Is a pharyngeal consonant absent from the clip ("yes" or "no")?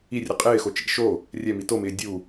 yes